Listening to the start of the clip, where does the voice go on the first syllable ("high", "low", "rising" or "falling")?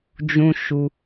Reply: high